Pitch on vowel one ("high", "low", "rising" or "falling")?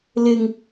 low